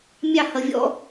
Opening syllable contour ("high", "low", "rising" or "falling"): falling